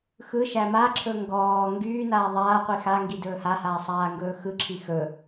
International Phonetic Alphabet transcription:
xɯ ʃæmaǁʰɵ ŋɡɔː ŋɡyːnaː ðˤaːqʷi xaŋɡi dɵːhahaː sˤaːŋɡɵːxɯǁʰi xɵ

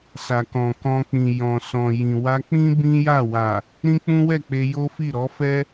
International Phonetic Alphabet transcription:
sa˨kɔ̃˨kɔ̃˧k͡pĩ˨ jɔ̃˨sɔ̃˨jĩ˨ wa˧k͡pĩ˦ bĩ˦ja˦˨ wa˨ | ɾĩ˦k͡pũ˦wɛ˦˨k͡pe˧ jo˦fi˦˨ ɾɔ˨˦fɛ˦

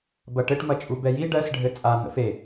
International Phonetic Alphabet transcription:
bɐʈɘʈ mɐt͡ʃʼubɛji ɖɜs ɖʱɘt͡sʼa n̪ə̰fe

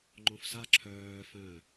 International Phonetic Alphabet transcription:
ŋ͡ǃõfsa ǁʰœː fœ̃

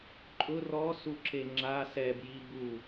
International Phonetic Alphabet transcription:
ǃʼʊ rɔsuǁe ŋ͡ǁa sɛbji bu

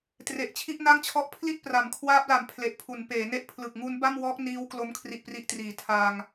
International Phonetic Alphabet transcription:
tre˨˩ʔt͡ɕʰi˥˩ʔna˥˩ŋt͡ɕʰɔ˦˥ʔ pʰli˥˩t̚pra˩˦mkʰwaː˦˥p̚la˨˩m pʰle˨˩ʔpʰu˩˦n peː˩˦ne˦˥ʔpʰlɯ˨˩k̚ ŋu˦˥n ba˥˩mwɔː˦˥k̚ niː˦˥wklo˦˥m kʰri˨˩ʔpri˨˩ʔ triː˩˦tʰaː˧ŋ

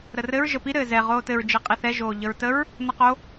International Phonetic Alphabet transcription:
ɾərɘɹ ʒəpi ɾɘːzɛ ʁoːtɘɹ d͡ʒeqʼiθɛ ʒoːʎəɹtəɹ | nəqo

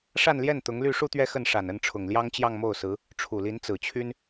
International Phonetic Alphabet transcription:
ʂa˥˧nljɛ˥˩n t̪ʊ˧˥ŋly˥˧ ʂu˥˧t̪ɥɛ˥˧ xə˥˩nʂa˨˩nə˥˩nʈ͡ʂʰʊ˨˩ŋ ljɑ˥ŋt͡ɕjɑ˥˧ŋmo˥˩ʊ̯sɹ̩˧˥ | ʈ͡ʂʰu˨˩li˧˥nt͡sɹ̩˨˩t͡ɕʰy˥n

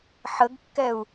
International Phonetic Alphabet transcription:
ħəɡkːɛu̯

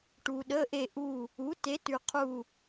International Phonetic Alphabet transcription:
ʈu˩ ɗə˩˧˩ʔe˧˩ʔu˧˩ | u˩˥ te˩˥tʉ˩qʰu˧˩

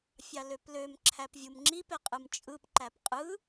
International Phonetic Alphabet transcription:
fʲɑløpløm ǁʰæpvʲumŋ͡ǁip eqʼɯmt͡ʃʼɯp ǃæpqʼɯ

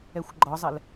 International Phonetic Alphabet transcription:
ɛxʷɡ͡ǃɒzˤɛl

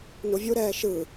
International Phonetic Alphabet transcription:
nuvʲuɾɛː ʃɯ

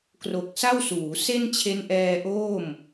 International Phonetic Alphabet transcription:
kro˨˩k̚sa˥˩wsuː˩˦ se˥˩nt͡ɕʰe˦˥nʔɛː˧ʔoː˥˩m

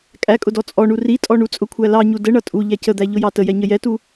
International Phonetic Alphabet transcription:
kʼækʼʊ dɔt͡sʼɔɳu ritʼɔ ɳut͡sʼʊkʷʰæ lɑɲu dəɳʌ tʼu ʎæcəd̪æ ʎʊjɑtəjɛ ɲəjɛtu

